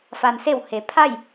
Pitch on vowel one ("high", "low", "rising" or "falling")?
low